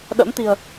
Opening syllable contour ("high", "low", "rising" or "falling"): rising